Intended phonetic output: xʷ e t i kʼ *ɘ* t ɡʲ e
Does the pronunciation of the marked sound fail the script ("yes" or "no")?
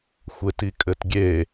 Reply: no